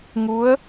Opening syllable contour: rising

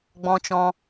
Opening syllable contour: high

